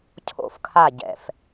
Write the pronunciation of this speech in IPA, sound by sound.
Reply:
cʰ o̰˧˩ f kʰ a˧˩ ɟ ɛ̰˩ f

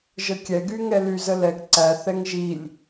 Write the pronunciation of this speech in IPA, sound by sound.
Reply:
ʒ ə kʲ ɛ ɡ y ŋ ɛ l y z ə l ɛ ɡ ǀ æ θ ɛ ŋ ʒ i lʲ

